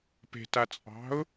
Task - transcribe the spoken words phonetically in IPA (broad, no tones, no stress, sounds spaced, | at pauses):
p e̤ t a t͡sʼ ɑ̤ ʊ̯